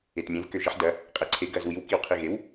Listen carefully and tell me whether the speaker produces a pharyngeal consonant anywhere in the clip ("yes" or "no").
yes